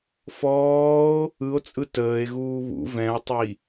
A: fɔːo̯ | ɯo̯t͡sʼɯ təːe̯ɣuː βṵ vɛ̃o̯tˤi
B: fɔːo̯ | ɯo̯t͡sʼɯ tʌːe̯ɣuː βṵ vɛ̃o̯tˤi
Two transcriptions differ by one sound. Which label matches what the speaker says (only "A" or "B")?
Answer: A